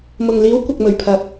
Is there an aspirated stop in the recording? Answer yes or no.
yes